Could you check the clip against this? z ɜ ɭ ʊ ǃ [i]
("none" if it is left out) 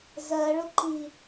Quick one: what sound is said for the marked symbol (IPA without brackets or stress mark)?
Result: i